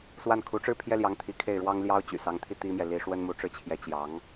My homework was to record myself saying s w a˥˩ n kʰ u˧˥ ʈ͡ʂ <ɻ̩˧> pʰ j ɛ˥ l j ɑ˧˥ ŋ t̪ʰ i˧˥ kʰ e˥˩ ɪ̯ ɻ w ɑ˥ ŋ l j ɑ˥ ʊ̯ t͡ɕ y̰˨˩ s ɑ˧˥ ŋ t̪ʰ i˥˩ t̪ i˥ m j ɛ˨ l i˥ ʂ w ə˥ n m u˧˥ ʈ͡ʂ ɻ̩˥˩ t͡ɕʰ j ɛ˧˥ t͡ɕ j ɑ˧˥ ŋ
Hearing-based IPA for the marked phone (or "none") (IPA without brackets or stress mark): ɻ̩˥˩